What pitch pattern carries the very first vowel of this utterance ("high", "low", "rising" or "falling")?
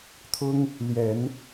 high